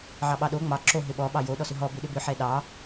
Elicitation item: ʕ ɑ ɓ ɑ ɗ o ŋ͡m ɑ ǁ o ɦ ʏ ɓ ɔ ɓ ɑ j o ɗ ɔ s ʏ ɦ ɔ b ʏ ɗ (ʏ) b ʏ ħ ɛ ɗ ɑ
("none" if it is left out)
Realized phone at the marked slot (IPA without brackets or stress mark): ʏ